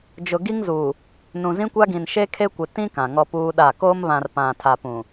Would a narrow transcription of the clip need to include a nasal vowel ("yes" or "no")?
yes